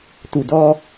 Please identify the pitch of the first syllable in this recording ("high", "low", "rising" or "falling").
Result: low